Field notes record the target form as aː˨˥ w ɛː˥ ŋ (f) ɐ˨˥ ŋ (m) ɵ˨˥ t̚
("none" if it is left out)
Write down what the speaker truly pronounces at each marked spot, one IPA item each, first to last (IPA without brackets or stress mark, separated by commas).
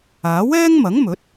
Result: m, m